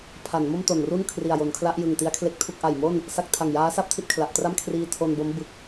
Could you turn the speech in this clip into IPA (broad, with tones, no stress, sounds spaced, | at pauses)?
pʰ a˩˦ n m o˥˩ m t o˨˩ n r u˥˩ n kʰ r i˨˩ a̯ j o˩˦ n kʰ l a˦˥ ʔ j ɯ˨˩ ŋ t i˦˥ a̯ kʰ l e˦˥ k̚ tʰ u˥˩ k̚ ʔ a˨˩ j m o˥˩ n | s a˦˥ k̚ tʰ a˨˩ ŋ j aː˦˥ s a˥˩ p̚ tʰ i˦˥ t̚ kʰ l a˨˩ ʔ t r a˥˩ m kʰ r iː˧ tʰ o˧ n b o˦˥ m b ɯ˨˩ k̚